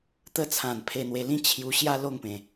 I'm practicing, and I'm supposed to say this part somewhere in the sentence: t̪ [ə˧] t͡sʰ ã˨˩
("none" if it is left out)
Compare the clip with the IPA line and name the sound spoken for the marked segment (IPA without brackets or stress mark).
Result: ə˧